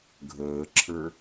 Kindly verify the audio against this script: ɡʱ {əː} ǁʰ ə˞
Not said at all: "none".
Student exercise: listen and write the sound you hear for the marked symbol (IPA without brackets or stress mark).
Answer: əː